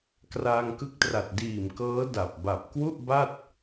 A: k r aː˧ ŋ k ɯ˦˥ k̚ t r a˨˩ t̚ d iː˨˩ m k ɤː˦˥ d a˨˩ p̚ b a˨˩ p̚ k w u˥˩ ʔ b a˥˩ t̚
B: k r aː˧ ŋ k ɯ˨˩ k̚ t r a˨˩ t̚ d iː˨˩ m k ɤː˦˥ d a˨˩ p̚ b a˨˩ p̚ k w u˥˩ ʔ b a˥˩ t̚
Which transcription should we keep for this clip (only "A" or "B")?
A